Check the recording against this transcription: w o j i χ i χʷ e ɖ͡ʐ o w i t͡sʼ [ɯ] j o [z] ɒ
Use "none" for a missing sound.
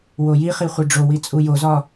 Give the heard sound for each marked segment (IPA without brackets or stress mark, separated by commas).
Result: u, z